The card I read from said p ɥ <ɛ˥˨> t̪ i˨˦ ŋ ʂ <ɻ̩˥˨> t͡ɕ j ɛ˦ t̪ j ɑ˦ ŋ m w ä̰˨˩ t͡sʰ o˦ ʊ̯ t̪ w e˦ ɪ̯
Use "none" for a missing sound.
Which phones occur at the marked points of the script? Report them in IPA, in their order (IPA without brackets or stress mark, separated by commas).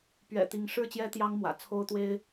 ɛ̰˨˩, ɻ̩˥˨